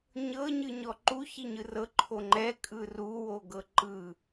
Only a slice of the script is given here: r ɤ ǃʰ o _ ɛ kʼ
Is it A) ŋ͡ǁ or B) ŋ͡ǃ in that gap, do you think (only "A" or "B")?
B